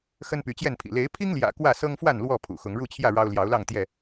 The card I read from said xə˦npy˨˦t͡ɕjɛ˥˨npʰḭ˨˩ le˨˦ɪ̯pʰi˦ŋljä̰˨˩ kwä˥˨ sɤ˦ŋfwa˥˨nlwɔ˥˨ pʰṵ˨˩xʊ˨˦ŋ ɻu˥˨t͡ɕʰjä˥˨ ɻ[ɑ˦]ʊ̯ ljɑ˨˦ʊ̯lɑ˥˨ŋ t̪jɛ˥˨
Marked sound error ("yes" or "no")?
no